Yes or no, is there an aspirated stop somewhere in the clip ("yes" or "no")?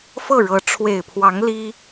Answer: yes